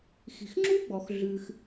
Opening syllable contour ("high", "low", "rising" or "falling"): low